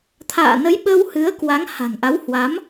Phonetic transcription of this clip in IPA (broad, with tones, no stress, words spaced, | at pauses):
t̪ʰa̰ː˧˨ nə˨˦j ɓə˧whɨ˨˦ə̯ kwa˨˦ŋha̤˨˩ŋʔa˨˦whwa˨˦m